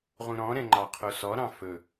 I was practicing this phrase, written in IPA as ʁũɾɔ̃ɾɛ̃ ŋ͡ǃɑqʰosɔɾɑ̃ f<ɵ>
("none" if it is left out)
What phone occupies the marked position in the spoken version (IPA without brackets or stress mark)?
ɵ